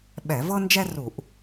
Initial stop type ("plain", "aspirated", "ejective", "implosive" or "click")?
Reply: implosive